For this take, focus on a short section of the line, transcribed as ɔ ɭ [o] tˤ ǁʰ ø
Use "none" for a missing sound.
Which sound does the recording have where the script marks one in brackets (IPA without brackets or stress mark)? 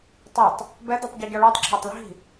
ɔ